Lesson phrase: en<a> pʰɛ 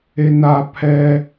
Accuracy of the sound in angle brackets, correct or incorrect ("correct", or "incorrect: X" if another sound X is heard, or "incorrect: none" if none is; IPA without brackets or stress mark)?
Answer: correct